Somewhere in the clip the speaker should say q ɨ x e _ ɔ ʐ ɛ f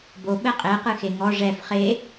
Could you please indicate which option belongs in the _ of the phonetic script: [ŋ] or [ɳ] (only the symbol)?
ŋ